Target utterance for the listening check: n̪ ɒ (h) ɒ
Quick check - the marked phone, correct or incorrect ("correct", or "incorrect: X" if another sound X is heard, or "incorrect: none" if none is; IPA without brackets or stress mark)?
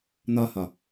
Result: correct